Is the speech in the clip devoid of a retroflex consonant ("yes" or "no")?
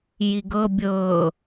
yes